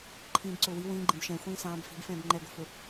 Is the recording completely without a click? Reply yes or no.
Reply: no